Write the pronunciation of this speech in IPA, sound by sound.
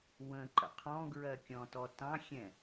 wə̃ǃə̰ qʰɔ̃ɡɹɜkʲɔ̃tɔ tɑ̃xʲɛ̃

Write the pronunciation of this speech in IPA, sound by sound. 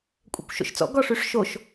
kʷʼɛ̰kʷʃo̰ʃt͡sɔ̰ ɡɔʂyʂʃoʃ

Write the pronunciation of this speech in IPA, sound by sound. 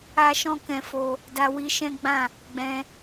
a˦ʃɔ̃˦kɛ̃˧fo˧ | da˧wi˧ʃɛ̃˦ɡ͡bã˦˨ | ɡ͡bɛ̃˧

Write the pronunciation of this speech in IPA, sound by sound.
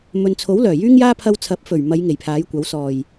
mɵ˨nt͡sʰo˨˥w lœː˨˩jyː˥ŋjaː˥ pʰɐ˧w t͡sʰɐ˨˥p̚fɵ˨˩ɥmɐ˨˧j ŋe˨˩jpʰaː˨˥jkʷɐ˨˥w sɔː˨˩j

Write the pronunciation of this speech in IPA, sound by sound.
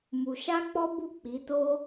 mu˧ ʃa˦k͡pɔ˦bu˦˨ k͡pi˨˦to˦

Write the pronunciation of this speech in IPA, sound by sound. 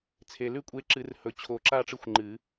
t͡sʰe˨˩lʉ˥˧kʷʼe˧˥ ǁɨ˨˩˦rhɵ˨˩t͡ɕʰo˨˩˦ ǁa˥˧ʈ͡ʂɨ˧˥xʷŋ͡ǃɨ˨˩˦

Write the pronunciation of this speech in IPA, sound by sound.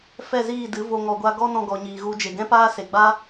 fɛ˦˨ziː˦˨dɨ˨˦ vo˨ŋɔ˨ɡʷa˧ ɡɔ˦ nɔ̃˧ɡɔ˨ɲiː˨ɣu˧ d͡ʒe˨ɡɛ̃˦paː˦ se˨ɡ͡ba˦

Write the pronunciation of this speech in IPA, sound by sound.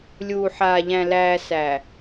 lʲuː˨ħaː˨ ʎæ̃˨ læː˨ sæ˨

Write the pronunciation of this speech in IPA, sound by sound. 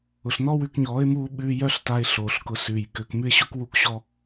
ʊ˨ɬnɔ˦wʉ˧kɲɔː˨˦ɪ̯ muː˧ɓʉː˧ jœ˦ɬta˧ɪ̯ ɬoː˨ɬkʊ˧ sʉː˨jkø˧k mʉ˦ɪ̯ɕʊ˦kwu˦kɕɔ˦

